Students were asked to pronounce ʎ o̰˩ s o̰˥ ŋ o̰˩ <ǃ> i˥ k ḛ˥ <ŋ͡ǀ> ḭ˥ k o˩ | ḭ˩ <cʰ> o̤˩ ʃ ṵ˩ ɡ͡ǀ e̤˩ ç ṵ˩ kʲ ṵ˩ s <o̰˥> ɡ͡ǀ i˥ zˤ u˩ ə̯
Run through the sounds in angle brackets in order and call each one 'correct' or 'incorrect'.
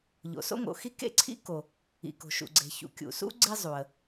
incorrect, incorrect, incorrect, incorrect

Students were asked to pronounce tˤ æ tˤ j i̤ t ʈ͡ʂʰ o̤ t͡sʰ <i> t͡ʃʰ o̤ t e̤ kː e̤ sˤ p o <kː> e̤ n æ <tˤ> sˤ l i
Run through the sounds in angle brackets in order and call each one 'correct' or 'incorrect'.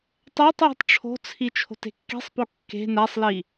correct, correct, incorrect

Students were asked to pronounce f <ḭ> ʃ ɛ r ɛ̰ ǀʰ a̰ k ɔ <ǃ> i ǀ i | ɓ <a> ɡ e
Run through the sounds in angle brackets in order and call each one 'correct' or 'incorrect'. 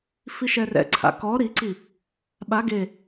incorrect, incorrect, correct

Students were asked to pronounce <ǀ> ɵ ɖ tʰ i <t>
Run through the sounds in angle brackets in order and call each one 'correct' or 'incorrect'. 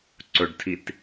correct, correct

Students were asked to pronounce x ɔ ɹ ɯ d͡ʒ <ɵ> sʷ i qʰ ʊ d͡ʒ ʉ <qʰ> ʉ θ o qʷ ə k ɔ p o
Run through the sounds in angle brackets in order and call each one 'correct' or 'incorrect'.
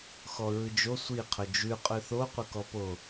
incorrect, incorrect

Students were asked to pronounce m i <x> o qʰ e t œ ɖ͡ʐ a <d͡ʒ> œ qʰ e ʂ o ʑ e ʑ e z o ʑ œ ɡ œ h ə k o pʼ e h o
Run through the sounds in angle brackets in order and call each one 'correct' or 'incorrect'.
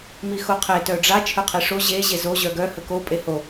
correct, incorrect

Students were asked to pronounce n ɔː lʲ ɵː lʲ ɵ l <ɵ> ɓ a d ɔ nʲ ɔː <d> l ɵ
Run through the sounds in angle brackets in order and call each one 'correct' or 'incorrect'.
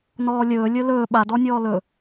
incorrect, incorrect

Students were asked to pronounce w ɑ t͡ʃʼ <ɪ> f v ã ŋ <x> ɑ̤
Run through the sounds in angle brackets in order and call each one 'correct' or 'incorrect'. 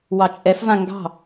incorrect, incorrect

